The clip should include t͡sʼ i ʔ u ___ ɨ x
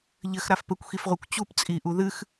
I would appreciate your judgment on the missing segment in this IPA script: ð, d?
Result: ð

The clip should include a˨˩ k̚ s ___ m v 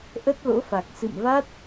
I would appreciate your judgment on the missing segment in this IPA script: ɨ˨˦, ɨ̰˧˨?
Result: ɨ̰˧˨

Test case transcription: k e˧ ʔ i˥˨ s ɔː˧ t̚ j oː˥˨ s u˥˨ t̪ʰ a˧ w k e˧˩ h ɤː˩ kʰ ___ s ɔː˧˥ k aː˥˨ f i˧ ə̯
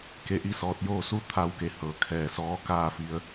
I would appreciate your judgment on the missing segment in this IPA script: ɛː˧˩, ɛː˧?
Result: ɛː˧˩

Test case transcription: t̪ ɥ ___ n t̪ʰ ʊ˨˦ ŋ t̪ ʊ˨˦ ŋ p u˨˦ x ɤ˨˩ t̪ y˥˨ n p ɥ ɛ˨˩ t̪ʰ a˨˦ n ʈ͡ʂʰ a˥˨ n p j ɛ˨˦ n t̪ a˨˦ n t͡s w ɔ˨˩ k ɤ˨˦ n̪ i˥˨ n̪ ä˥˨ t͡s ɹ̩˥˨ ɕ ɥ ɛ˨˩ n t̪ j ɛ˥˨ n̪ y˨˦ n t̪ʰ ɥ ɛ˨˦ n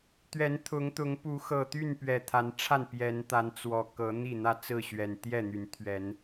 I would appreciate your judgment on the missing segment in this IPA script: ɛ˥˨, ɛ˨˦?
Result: ɛ˨˦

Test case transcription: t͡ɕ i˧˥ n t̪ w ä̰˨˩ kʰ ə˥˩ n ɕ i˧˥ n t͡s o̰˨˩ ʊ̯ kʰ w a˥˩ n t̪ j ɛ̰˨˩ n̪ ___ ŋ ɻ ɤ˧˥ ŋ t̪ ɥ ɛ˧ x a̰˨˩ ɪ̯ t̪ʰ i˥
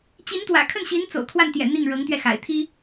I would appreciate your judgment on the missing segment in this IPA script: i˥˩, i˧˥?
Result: i˥˩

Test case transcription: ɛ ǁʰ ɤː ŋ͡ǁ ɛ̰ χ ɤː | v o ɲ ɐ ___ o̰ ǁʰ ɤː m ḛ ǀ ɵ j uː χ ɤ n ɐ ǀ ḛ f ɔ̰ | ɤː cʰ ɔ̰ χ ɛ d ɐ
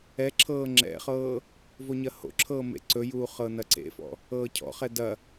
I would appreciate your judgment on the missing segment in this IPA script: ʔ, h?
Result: h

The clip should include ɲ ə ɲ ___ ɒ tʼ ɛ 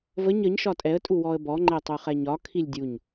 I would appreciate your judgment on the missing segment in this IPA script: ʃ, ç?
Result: ʃ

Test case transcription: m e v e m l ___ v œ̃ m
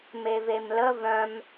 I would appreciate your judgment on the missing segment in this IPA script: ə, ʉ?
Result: ə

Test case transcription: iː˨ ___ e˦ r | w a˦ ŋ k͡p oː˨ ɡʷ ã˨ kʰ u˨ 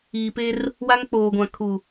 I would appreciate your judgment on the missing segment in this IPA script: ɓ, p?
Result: p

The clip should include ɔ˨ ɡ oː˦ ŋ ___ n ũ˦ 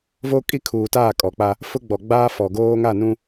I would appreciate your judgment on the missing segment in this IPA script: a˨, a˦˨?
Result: a˦˨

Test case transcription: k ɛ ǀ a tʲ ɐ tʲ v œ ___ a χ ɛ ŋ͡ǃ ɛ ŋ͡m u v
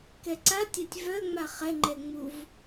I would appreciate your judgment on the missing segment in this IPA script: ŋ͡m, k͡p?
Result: ŋ͡m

